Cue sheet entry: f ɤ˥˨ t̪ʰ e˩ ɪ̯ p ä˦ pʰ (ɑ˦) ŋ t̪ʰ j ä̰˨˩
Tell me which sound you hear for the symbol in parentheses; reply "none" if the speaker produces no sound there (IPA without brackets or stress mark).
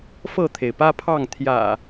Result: ɑ˥˨